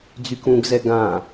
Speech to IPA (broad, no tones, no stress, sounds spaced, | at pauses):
d͡z y k ũ ɡ z ɛ ɡ ã